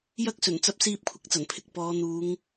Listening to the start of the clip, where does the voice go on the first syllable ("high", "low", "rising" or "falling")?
high